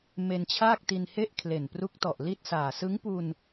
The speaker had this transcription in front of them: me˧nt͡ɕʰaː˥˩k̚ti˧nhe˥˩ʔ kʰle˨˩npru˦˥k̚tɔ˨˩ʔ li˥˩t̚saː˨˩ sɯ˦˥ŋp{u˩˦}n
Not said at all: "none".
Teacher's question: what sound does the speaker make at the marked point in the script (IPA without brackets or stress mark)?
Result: u˧